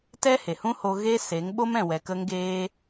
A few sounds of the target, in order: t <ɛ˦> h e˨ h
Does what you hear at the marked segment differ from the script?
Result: no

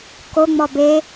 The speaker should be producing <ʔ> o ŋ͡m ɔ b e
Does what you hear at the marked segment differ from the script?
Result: yes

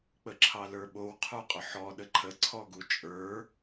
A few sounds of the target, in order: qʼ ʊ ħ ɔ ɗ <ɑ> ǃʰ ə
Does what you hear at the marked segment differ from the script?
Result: yes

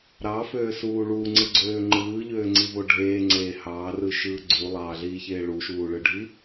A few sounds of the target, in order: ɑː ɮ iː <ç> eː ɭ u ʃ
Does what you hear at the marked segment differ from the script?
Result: no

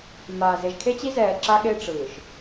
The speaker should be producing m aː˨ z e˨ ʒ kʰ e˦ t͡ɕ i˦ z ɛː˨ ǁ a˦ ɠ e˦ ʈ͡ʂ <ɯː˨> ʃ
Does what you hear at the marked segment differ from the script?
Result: no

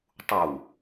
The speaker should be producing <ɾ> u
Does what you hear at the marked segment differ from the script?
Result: yes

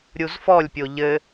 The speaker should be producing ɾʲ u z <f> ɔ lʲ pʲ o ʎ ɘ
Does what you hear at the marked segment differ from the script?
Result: no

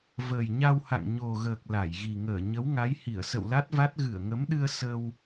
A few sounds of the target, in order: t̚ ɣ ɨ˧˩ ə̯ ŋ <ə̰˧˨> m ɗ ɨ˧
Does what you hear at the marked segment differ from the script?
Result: yes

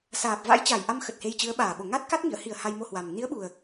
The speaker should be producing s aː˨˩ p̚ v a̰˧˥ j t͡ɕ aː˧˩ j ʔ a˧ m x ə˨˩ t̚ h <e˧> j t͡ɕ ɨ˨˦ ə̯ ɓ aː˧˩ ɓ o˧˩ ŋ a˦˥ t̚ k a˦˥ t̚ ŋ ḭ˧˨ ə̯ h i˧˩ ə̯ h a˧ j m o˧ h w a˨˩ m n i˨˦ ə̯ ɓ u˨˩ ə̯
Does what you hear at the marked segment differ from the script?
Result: no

